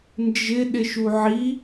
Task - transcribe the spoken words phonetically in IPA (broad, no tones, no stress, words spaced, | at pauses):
nd͡ʒɪ ɗɪʃuʕi